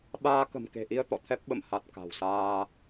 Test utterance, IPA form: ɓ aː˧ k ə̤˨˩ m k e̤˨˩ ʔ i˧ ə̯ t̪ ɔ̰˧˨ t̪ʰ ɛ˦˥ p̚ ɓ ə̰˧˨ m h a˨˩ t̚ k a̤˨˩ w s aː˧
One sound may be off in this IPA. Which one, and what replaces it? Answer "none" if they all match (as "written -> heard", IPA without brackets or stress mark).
none